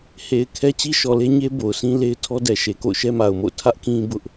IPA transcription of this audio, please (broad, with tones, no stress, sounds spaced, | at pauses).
h e˨ ɪ̯ kʰ ɛ˦ t͡ɕ i˦ ʃ ɔ˨ l e˦ ɲ e˦ b o˨ ʊ̯ s ĩ˦ l e˦ ɪ̯ tʰ ɔ˦ d ɛ˨ ʃ e˨ k o̰˦˨ ʊ̯ ʃ ɛ˦ m a˨ ʊ̯ m o̰˦˨ ʊ̯ tʰ ä˦ ʔ k ĩ˦ b ʊ˦ ʔ